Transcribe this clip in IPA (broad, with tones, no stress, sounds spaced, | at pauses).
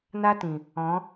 n a˦ t ĩ˨ | ɔ̃˨˦